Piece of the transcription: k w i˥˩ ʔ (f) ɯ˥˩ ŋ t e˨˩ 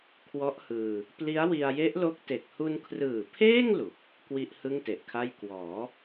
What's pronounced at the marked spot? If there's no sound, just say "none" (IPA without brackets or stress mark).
h